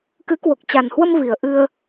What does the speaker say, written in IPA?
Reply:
k ɨ˨˦ k w o˨˩ k̚ t͡ɕ a˨˩ n h w ə˧ m v i˨˩ ə̯ ʔ ɨ˧ ə̯

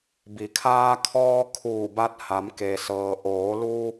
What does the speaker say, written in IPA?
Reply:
b i˩˧ kʰ aː˧ kʰ ɔː˧ kʰ uː˧˩ b a˧ t̚ h a˩˧ m k e˩ s ɤː˩ ʔ oː˩˧ l u˧

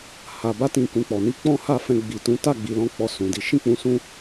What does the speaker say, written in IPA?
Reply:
h a˨ b a˧ t ĩ˨ k ũ˨ k͡p ɔ˨ n i˧ k͡p ɔ̃˦ h a˦˨ f ɛ̃˧ ɡ͡b i˨ t ũ˨˦ t a˦˨ ɡ͡b i˨ l ɔ̃˨˦ k͡p ɔ˧ s ũ˨ d i˨˦ ʃ ĩ˦˨ k͡p ũ˧ s ũ˦

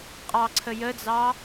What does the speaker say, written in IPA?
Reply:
qʼ ɑ ǀʰ ə j ə d͡z ɑ

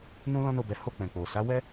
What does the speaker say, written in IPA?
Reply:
n ũ˦ l ɔ̃˦ n o˦˨ b ɛ˨˦ h o˦˨ k͡p ɛ̃˨ k͡p o˨ s a˨˦ w ɛ˦

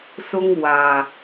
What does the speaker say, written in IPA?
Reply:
s ʊ˧ ŋ w aː˨

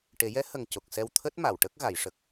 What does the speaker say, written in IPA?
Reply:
ʈ e˨˩˦ j ɛ˧˥ h ə˨˩ ŋ c o˨˩ k̚ s ɛ˧ w t̪ʰ əː˦˥ t̚ m a˨˩˨ w ʈ ə˦˥ k̚ ɣ a˨˩˦ j ʂ ə˨˩ k̚

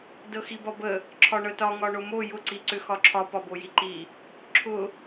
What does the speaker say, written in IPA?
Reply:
d ɤ x i b ɒ b ə | ǁʰ ɒ ɳ ɤ t ɒ ŋ ɒ ɳ o m o j ʊ ǀ i ǀ ʏ x ɒ ǁʰ ɒ p ɒ b o j i ǃ i | ǁʰ ʊ

